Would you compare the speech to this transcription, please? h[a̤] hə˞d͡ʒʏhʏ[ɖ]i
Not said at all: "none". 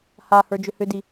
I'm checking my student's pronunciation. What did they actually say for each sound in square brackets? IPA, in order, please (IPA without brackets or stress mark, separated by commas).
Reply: a, d